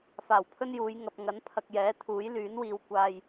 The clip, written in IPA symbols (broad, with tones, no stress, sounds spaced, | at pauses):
f aː˨˩ w pʰ ɵ˥ n j uː˨˧ j ŋ ɐ˨ p̚ ŋ ɐ˨˥ n pʰ ɐ˧ k̚ j ɛː˨˥ t̪ʰ uː˨˥ j l yː˨˥ n w iː˧ w kʷ aː˧ j